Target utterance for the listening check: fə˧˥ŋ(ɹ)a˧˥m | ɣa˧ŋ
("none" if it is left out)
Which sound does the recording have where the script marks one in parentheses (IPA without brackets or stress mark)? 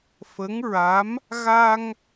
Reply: ɹ